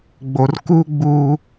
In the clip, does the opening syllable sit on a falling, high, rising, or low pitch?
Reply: low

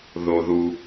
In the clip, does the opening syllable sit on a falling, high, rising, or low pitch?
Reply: low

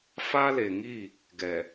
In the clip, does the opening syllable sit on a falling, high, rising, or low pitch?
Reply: high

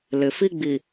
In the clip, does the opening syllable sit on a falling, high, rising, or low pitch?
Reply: low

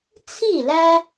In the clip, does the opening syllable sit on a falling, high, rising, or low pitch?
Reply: falling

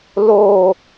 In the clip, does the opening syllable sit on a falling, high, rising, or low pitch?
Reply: high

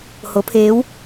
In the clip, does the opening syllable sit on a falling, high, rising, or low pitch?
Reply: rising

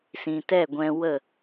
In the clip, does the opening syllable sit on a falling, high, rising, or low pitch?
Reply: low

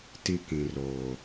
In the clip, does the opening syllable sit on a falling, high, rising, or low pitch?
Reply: high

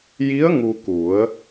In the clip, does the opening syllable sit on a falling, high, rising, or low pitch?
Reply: rising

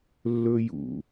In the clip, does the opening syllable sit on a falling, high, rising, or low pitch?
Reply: high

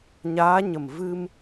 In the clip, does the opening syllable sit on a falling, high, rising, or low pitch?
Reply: rising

